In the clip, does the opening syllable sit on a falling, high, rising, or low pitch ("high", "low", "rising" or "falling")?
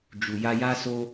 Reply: low